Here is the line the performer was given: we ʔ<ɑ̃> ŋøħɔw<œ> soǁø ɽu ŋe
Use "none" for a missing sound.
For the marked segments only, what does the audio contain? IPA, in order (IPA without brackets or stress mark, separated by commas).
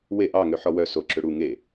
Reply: ɑ, œ